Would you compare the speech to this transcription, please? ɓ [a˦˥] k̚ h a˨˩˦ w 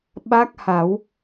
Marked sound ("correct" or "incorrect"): correct